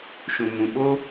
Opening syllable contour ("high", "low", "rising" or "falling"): low